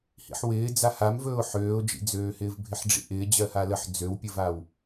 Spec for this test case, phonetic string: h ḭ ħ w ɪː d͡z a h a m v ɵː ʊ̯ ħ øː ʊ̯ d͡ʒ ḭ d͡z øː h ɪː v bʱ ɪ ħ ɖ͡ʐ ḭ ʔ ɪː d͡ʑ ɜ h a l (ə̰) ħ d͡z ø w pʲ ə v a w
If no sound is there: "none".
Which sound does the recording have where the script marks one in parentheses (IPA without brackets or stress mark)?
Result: ə